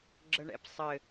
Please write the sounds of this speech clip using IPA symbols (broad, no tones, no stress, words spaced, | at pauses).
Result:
ɡ͡ǁəɳɛ̰psˤɘ